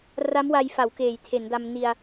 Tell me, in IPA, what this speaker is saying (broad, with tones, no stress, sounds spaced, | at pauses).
r a˦˥ m w a˧ j f a˩˦ w k eː˩˦ j tʰ e˩˦ n d a˧ m n i˧ a̯